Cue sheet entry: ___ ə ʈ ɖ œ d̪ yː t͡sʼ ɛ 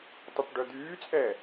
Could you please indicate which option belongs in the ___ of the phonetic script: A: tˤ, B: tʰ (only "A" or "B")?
A